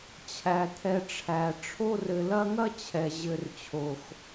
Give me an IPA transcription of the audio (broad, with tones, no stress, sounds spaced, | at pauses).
t͡ɕʰ æ˩ t̪ʰ ɛ˨ ʈ͡ʂʰ æ˩ ʈ͡ʂʰ o˦ r ɘ˨ l ɐ˦ ŋ ɐ˥ t͡ɕʰ ɛ˩ ʑ ɘ˨ r t͡ɕʰ o˩ x